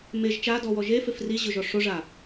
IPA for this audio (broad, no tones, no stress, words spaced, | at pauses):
meʒ t͡ʃadɔwɔ ʒefef riʑʊʒɔ ʂoʐa